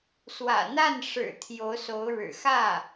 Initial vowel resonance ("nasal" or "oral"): oral